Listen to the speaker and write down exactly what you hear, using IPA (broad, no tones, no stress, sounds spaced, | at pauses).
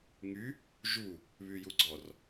ŋ y | ʒ u | β y j u ɡ͡ǀ ɔ r